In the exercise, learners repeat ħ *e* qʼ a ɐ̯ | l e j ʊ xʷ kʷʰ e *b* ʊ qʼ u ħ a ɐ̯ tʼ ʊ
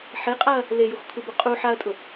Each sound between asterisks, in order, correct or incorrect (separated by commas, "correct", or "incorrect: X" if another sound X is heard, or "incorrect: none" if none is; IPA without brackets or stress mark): correct, correct